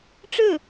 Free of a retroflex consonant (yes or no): no